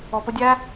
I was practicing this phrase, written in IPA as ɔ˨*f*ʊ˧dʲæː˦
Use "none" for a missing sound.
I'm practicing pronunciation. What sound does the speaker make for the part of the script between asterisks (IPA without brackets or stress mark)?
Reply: p